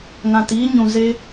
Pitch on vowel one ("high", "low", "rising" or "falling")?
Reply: low